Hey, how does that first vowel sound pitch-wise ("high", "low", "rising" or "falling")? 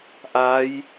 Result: rising